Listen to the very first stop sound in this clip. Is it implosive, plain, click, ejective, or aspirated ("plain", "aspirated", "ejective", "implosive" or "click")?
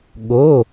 implosive